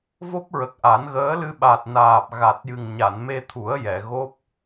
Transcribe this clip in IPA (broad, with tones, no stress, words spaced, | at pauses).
vo˦˥p̚ɹə˨˩k̚ʔa˨˩˦nɣəː˧˥ lɨ˧ ɓa˨˩t̚ naː˨˩p̚ ɣa˨˩t̚jɨ˨˩ŋ ɲa˨˩˨nme˧t̪ʰu˨˩˦ə̯ jɛ˨˩˨ ɣo˦˥p̚